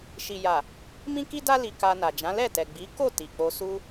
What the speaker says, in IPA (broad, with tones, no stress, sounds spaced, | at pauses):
ʃ i˨ j a˨ | m ĩ˦ k i˦ d a˦ l i˧ k a˧ n a˨ d͡ʒ ã˨˦ l ɛ˦˨ t ɛ˨ ɡ͡b i˨˦ k o˦˨ t i˨ k͡p o˧ s u˧